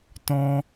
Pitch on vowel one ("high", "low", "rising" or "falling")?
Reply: high